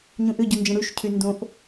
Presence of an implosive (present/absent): absent